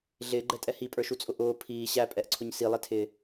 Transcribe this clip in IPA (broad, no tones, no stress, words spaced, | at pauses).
ɮɪːɡ͡ǃɛtʼɛ hipʼə˞ʃut͡sʼʊ ʔʊː pʰiː ɕæpʼɛʔǀʰʊɲ silˠɛtʰɪː